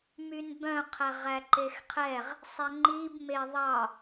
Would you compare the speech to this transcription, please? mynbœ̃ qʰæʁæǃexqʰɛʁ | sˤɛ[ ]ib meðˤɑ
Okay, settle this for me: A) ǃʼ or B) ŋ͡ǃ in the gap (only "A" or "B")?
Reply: B